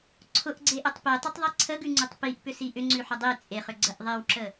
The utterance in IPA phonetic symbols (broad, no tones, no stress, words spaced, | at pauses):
ǀʰʊʔɡ͡ǀeʔʊtˤ petˤʊtˤðˤi ǀʰəɡʉŋ͡ǀʉtˤ piʔpʏsi ʔʏŋ͡ǀʉħʊ dˤi t͡sʼeχʏɡ͡ǀəʔ ðˤewǁə